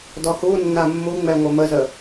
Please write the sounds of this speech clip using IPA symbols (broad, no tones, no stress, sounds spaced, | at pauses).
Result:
d ɔ h u nː a mː u ŋ͡m ɛ ŋʷ ɐ m ə z ə